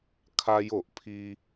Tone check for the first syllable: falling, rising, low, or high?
high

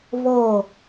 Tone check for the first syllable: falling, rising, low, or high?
falling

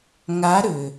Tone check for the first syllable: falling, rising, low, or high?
rising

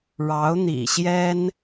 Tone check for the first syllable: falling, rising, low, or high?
rising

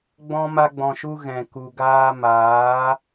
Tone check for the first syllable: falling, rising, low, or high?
high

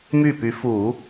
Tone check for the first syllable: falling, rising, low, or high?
falling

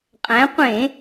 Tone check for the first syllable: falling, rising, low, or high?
rising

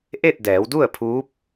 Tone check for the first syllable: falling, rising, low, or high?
falling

